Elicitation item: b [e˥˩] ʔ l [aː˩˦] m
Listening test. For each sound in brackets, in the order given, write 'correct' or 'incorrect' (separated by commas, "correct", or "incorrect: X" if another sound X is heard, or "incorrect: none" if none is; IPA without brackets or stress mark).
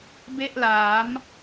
correct, correct